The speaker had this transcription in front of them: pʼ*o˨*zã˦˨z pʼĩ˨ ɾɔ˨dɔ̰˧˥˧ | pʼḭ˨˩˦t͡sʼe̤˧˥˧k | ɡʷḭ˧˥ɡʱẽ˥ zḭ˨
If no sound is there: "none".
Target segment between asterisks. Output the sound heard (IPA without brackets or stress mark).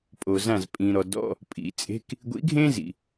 o˨